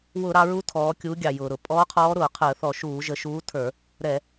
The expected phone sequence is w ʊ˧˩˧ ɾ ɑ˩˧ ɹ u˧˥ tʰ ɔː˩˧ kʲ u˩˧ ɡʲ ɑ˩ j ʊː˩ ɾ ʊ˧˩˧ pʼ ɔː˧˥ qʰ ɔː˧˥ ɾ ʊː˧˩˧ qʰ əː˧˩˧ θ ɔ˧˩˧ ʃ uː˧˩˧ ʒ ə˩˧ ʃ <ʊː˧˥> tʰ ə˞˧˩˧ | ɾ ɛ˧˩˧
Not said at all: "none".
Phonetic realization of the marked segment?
uː˧˥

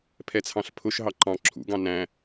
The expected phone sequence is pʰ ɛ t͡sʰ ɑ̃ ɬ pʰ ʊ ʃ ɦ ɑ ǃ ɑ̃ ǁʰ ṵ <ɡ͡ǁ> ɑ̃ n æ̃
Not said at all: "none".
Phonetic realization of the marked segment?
ɡ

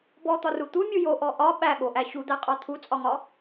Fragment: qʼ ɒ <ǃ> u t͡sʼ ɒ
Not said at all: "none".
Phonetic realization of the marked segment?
t̪ʰ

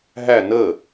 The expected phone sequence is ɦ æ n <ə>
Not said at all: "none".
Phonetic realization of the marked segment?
ə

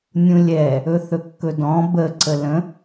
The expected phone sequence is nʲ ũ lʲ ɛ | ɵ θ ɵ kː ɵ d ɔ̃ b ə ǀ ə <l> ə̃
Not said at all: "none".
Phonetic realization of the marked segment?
l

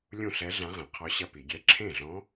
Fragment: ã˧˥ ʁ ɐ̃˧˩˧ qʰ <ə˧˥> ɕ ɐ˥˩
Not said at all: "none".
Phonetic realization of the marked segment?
ɔ˧˥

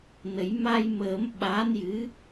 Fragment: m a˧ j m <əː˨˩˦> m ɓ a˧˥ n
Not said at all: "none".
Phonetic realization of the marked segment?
əː˨˩˦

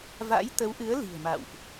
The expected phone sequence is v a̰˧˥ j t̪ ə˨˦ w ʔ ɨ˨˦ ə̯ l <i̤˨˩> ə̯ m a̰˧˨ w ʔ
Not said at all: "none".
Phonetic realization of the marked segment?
i̤˨˩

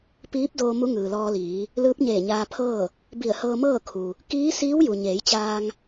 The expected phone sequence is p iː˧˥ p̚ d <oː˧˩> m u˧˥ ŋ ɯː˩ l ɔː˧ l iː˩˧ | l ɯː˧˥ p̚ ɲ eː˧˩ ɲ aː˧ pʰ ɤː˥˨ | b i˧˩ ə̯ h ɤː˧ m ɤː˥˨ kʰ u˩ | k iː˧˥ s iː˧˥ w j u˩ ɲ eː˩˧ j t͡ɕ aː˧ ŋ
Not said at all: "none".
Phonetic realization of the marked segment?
oː˧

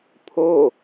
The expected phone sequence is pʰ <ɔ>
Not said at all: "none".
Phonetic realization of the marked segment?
o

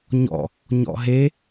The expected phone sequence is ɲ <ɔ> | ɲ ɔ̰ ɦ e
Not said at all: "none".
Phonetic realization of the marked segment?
ɔ̰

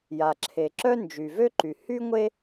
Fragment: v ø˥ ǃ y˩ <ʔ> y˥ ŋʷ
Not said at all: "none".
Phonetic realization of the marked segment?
h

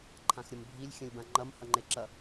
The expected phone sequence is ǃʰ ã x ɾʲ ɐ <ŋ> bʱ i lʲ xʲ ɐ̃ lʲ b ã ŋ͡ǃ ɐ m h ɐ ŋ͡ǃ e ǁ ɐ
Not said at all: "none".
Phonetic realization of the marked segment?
m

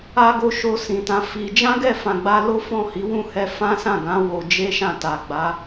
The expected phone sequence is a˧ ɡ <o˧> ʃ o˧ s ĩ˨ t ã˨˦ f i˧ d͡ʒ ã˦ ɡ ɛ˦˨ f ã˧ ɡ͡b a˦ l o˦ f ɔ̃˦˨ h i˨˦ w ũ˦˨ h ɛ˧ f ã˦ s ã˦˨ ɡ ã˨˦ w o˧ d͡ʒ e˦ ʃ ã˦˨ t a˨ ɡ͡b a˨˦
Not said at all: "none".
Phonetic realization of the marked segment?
o˧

